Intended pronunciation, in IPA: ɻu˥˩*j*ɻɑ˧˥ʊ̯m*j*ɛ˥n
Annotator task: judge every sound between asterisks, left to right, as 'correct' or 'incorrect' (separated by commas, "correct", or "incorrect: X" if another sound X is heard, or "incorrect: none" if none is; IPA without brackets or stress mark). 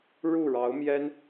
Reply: incorrect: none, correct